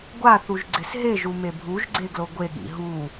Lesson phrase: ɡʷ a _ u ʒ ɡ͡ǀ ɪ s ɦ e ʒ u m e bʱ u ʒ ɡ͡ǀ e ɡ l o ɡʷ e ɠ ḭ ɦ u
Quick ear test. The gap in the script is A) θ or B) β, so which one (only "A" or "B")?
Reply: A